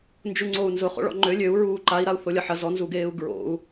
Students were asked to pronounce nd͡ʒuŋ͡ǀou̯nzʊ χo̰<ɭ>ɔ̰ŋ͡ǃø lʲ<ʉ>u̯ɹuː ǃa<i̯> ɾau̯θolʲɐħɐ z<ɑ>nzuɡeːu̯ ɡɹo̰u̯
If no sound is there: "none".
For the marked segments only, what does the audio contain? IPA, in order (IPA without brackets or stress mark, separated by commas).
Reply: ɭ, ø, i̯, ɔ